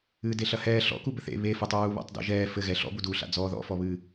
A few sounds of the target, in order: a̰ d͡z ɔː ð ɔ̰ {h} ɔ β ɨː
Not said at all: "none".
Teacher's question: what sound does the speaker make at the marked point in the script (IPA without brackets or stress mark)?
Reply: f